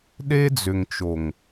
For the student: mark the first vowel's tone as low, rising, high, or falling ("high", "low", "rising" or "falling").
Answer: high